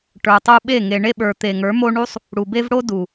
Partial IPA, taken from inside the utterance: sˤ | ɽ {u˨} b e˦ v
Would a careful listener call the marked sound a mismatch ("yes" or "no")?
no